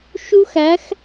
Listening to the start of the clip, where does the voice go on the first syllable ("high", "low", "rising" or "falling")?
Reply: high